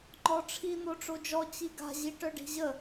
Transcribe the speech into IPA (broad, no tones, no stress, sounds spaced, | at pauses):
ŋ͡ǃ ɔ ʈ͡ʂʰ i n̪ o ʈ͡ʂ o d͡ʒ ɔ t͡ɕ i ɡ a̤ ʑ i ʈ œ ɖ i̤ ʑ ə